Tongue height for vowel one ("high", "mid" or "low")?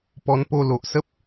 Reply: mid